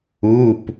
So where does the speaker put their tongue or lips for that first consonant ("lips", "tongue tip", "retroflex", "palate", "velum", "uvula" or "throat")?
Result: lips